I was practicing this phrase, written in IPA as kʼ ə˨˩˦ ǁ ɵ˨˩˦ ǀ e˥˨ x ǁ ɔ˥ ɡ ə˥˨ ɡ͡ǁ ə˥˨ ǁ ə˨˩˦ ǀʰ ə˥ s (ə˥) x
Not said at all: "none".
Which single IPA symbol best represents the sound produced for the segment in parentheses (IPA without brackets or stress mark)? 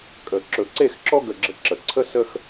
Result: ə˥